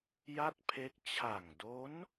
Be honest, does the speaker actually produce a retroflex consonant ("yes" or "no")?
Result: no